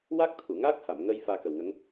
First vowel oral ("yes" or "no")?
yes